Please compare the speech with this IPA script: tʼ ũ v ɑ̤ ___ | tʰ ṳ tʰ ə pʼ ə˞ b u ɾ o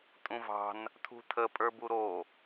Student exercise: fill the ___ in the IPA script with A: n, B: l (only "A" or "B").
A